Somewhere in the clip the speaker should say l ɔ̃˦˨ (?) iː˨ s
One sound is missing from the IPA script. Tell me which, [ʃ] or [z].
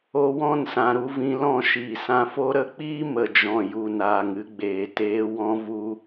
ʃ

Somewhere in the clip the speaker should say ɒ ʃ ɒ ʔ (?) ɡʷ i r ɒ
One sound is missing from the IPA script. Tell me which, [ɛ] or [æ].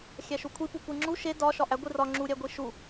æ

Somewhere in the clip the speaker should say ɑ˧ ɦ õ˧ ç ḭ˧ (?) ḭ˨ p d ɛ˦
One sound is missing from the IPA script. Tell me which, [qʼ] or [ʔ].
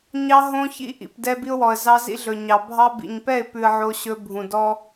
ʔ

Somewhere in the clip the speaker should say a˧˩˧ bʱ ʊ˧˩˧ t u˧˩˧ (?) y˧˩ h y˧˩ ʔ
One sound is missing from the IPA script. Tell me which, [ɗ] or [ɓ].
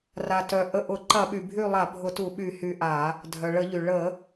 ɓ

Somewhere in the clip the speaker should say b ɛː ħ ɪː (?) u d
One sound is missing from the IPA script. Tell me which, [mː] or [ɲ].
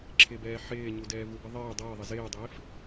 ɲ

